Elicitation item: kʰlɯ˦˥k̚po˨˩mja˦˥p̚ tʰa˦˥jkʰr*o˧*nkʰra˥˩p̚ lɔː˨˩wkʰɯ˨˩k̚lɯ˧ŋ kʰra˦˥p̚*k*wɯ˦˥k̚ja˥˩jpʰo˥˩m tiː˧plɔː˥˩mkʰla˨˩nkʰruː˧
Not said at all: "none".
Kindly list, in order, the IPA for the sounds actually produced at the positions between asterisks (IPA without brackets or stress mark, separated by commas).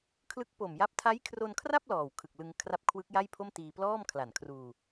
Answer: o˧, kʰ